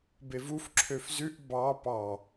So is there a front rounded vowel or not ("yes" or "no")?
yes